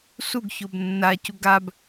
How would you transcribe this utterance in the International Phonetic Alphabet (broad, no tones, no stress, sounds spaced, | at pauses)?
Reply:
s u ɡ ç o b nː a c u ɡ a b